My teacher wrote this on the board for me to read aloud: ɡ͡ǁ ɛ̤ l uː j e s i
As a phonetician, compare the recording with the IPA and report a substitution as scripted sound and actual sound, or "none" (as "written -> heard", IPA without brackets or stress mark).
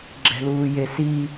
none